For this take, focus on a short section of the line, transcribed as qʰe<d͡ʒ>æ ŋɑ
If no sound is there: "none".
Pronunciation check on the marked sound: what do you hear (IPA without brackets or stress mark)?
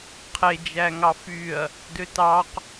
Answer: d͡ʒ